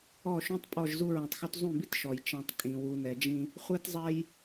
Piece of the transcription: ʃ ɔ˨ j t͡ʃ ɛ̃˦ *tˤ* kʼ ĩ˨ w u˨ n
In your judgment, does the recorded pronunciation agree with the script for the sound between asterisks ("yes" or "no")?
yes